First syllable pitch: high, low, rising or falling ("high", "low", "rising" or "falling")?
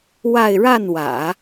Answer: falling